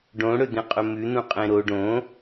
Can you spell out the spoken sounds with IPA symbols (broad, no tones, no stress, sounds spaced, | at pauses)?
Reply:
ɖ õ ɽ ɵ d̪ ẽ qʼ ɵ m ʉ n̪ ũ qʼ ẽ ɾ o ɖ õ